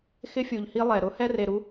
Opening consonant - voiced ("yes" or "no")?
no